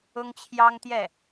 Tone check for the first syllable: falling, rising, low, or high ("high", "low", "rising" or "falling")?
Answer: high